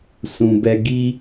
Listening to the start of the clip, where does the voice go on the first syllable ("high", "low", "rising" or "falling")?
low